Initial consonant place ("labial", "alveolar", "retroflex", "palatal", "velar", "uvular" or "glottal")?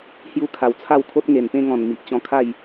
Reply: glottal